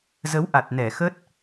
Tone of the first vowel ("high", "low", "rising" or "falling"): rising